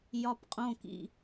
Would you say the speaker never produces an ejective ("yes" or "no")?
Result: no